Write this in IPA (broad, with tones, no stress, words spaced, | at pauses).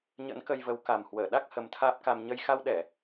ɲə̰˧˥nkə˧jvə˨˦w ka˨˩mhwəː˧˩ ɗa˦˥k̚ hə˨˦mt̪ʰaː˦˥p̚ka˧m ɲə˧j xa˧wɗɛ˧˩˨